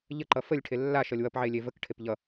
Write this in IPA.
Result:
ʎəǃʌ fəlʲʈʰe lːaʃʌlʲ wʌpʕe lʲevəkʈʰep ʎʌ

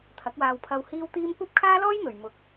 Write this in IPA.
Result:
t̪ʰɐ˨˥k̚waː˧wpʰɐ˧w hiː˥wt̪iː˥m kʷɐ˥p̚kʰaː˥ lɔː˥j n̪ɵ˨ɥ mʊ˨˥k̚

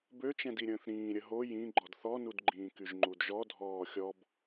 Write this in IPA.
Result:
bøt͡ʃɛ̃diɾʲə̃ːθ ɾĩːɾʲə ɦo jĩ ɡ͡ǃɔdθɔnud ɡ͡ǃĩːkyʒŋ͡ǃudʒɔ dʱɔːxʲɔb

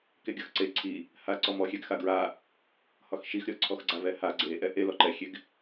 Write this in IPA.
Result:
keɡʲɒxǀe ǀʰi | haǀɔmɔxʲɛɡ xaɡɹa | hɒxʃixɾʲɔ ǀʰɔxɡ͡ǀavɛha ɡ͡ǀe ʔɛʔe lɔǃɛxʲeɡ

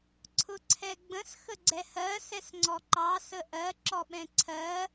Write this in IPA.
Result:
ǀʰʊǀʰɛɡ͡bə̃s xəɡ͡ǀɛhɜ sɛsŋ͡ǀɔǃɑ səʔɜ ǁɔɓɛ̃ǀʰɜ

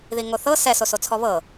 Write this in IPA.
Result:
ðiŋoθɤ sɛ sosot͡sʰɔβɤ

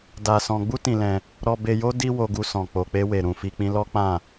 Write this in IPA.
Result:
da˧sɔ̃˧ ɡ͡bu˦tĩ˧lɛ̃˧ | ɾɔ˧be˧jo˦ di˦ wo˧ɡu˧sɔ̃˨ k͡po˨k͡pe˧we˨ ɾũ˨fi˧k͡pĩ˦ lɔ˦k͡pã˦˨

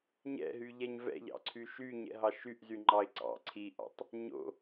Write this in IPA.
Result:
ɲɛ̰ɦyʎɛɲ vɛ̰ʎɑ̰ǀʰy ʃyɲɛ̰ɦɑ ʃyʔzyŋ͡ǃɑɪ̯ ǀɑ̰ ǀʰiʔɑ̰tˤ | ɲo̰

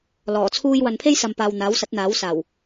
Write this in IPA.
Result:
lɔː˨˩t͡sʰuː˥j wɐ˨npʰe˥jsɐ˨mpaː˨w n̪aː˨˥wsɐ˨˥t̚n̪aː˨˥wsaː˨˩w

